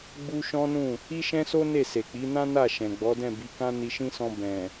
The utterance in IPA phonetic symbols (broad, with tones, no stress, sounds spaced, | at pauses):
ɡ͡b u˦ ʃ ɔ̃˦ n ũ˦˨ | i˦ ʃ ɛ̃˦ s o˦ n e˦˨ s e˨ k͡p i˨˦ n ã˦ n a˦˨ ʃ ɛ̃˨ ɡ͡b ɔ˨˦ d ɛ̃˦˨ b i˨˦ k ã˦ n i˧ ʃ ĩ˦ s ɔ̃˧ b ɛ̃˨